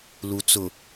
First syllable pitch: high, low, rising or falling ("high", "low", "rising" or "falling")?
low